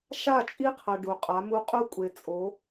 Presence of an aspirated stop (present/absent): present